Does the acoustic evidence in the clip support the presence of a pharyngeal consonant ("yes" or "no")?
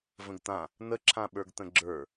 no